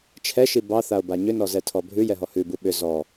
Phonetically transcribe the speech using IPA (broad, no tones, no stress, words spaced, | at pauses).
t͡ʃʰɛʃi bɑθao̯ba ɲʏnɔzɛtʰɔ bʱʉjɛɦɔ hʉbu ɓʏ zɔ